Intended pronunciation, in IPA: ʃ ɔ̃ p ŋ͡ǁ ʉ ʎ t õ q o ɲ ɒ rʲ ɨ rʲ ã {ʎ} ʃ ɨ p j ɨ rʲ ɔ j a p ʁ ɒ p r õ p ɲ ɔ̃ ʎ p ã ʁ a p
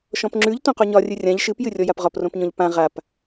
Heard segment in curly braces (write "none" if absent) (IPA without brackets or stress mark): ʎ